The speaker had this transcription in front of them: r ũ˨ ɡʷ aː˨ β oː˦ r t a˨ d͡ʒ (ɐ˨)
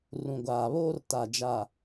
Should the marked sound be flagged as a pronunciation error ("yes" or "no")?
yes